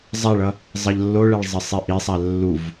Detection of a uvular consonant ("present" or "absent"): absent